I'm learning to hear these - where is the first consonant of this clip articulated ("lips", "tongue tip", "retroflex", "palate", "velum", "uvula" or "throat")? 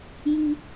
palate